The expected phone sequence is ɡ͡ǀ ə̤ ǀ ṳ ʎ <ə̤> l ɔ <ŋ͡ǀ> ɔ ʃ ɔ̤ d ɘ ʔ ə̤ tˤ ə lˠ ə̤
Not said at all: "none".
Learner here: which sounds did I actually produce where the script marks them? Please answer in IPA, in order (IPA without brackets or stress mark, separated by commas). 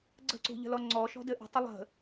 ə̤, ŋ͡ǀ